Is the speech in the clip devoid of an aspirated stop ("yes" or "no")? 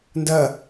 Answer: yes